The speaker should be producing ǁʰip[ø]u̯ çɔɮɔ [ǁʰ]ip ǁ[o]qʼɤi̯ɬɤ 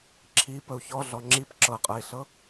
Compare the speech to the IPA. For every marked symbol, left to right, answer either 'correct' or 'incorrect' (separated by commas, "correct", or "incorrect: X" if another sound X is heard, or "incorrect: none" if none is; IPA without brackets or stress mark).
incorrect: ə, incorrect: ŋ͡ǁ, incorrect: ɤ